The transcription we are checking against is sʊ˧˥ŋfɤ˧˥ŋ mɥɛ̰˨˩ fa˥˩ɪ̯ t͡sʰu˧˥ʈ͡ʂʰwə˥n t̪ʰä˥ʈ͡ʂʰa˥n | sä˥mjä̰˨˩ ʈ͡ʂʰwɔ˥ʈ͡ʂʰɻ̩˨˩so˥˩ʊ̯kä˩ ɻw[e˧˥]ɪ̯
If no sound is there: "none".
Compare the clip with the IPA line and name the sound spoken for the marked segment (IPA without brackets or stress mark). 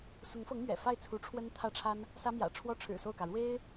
e˥